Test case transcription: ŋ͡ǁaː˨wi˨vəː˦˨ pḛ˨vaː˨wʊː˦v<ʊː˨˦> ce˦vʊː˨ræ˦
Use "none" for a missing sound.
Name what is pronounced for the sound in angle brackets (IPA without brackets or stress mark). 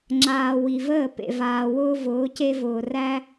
ʊː˨˦